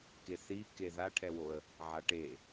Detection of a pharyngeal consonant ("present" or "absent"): present